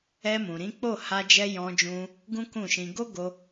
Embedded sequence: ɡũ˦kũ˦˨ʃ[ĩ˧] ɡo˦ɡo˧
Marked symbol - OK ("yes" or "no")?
yes